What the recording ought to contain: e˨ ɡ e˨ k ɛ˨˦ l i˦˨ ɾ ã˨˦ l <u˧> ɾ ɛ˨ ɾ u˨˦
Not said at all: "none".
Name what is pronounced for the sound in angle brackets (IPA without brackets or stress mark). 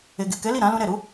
ũ˧